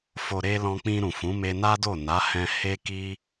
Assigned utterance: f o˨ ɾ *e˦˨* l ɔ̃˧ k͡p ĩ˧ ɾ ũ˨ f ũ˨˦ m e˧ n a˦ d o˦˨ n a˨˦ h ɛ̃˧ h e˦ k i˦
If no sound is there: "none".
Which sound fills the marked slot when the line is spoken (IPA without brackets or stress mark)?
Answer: e˧